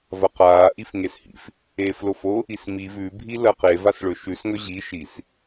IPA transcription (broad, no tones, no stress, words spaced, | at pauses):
vɐqaː ʔifŋeshḭf | eːflofo | ismi vʉ bʱilɐqe vasɭɵʃʉs ŋɵʑi ʃis